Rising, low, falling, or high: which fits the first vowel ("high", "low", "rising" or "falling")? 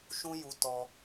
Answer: high